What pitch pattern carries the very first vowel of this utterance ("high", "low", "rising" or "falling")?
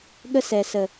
high